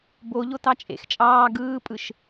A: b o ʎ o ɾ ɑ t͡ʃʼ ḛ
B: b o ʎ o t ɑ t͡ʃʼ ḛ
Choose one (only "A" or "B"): B